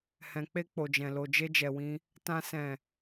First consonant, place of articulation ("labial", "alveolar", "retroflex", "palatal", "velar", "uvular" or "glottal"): glottal